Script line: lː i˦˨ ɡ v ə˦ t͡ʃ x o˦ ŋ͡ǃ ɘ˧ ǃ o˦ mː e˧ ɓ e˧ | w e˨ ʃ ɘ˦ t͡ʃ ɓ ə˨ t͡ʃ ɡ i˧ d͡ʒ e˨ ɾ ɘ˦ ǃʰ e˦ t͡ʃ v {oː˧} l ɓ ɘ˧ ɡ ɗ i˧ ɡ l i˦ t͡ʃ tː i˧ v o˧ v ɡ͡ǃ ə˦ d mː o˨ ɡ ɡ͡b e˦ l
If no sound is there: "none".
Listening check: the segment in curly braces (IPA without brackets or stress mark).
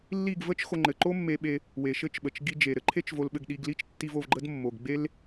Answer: o˧